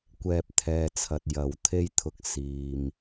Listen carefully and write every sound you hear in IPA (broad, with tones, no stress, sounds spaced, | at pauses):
kʷ ɛː˨ p̚ t̪ʰ ɛː˨ t͡sʰ ɐ˨ t̚ j ɐ˨ w t̪ʰ e˧ j t̪ʰ ʊ˧ k̚ s iː˨ m